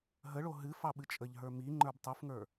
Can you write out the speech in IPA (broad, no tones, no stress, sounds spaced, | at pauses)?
ɦ ə ɭ o ɦ ɨ f ɑ ɓ ɨ t͡ʃʼ ə ʎ ɦ ə˞ m i ŋ͡ǃ ə˞ b tˤ u f ŋ ə˞